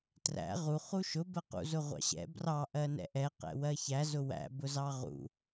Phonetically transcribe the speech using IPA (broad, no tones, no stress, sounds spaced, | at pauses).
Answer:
t r æ̰ ʁ u χ u ʃ ʊ b ɜ q ṵ z ʊ ʁʷ ɑ̰ ɕ ɛ̰ b r ɑ ʔ ɜ n ɛ̰ ʔ ɛ q ɛ̰ w ɜ ç æ z ʊ w æ̰ b ʊ z ɑ ʁ ṵ